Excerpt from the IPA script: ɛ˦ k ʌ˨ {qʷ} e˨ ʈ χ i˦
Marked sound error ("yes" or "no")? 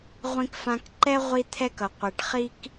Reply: no